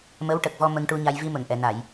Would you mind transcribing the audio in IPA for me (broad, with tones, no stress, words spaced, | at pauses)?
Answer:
mə˧˥wʈə˨˩k̚vɔ˧ mə˧ŋʈu˧ɲa˧j vi˧mə˨˩˨ŋʔɛ˨˩˨na˨˩˨j